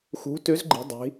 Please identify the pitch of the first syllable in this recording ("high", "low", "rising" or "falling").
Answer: rising